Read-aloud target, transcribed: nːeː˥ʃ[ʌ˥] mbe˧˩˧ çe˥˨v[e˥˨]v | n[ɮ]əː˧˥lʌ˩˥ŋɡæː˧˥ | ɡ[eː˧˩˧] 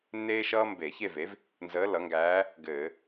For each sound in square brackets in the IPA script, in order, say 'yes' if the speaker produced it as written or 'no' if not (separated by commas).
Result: no, no, no, no